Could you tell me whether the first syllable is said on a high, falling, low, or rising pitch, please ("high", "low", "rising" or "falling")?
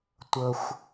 high